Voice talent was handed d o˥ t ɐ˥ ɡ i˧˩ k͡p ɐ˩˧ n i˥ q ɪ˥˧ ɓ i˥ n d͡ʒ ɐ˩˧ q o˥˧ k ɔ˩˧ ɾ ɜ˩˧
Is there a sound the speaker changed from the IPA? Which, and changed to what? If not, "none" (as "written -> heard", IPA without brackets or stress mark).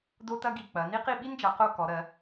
ɪ˥˧ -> i˥˧